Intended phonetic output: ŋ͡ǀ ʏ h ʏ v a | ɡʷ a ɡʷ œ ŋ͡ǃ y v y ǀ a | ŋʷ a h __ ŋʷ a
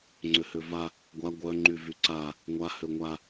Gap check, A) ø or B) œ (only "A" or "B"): A